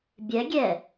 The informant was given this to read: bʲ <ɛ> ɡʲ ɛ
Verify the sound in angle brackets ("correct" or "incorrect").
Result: correct